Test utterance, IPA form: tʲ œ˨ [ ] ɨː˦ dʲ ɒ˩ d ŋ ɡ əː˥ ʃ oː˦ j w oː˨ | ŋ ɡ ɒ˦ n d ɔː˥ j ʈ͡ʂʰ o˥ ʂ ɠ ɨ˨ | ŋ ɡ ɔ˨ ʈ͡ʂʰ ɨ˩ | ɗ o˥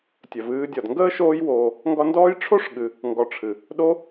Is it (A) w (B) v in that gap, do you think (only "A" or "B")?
B